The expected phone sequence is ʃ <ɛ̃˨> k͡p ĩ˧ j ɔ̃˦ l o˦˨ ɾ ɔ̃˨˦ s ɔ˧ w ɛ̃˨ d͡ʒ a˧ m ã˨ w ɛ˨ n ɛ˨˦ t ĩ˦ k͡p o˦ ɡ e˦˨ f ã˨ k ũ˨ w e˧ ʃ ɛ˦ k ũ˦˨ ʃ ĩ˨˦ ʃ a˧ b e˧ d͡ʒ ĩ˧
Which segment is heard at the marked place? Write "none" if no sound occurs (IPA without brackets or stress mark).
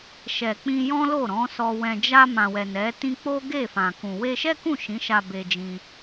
ɛ˨